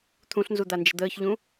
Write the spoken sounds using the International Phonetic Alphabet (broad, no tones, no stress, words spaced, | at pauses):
t̪ʰũɬnzud̪and͡ʒə̤ d̪əːçʎũ